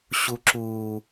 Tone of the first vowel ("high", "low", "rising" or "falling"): high